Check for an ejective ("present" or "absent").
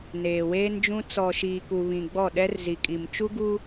present